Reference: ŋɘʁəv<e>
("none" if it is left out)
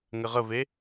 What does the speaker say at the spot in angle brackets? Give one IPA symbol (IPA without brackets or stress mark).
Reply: e